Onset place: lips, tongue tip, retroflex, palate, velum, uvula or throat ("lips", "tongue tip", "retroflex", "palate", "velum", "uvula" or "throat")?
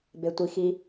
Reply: lips